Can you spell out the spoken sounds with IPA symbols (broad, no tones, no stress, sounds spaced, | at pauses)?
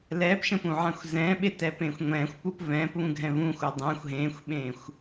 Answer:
l ɛː p ʃ ə̃ p ũ ʕ ã xʷ z ɛ̃ː ɓ e t ɛ p ẽ xʷ ŋʷ ɛ̃ː xʷ p u p v ɛ̃ː p β ũ ɡʱ ɛ̃ v ũː xʷ a dˤ ɛ̃ xʷ ɦ ẽː xʷ ɓ ẽː xʷ